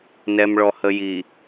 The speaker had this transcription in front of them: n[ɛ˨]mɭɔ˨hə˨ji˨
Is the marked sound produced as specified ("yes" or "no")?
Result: yes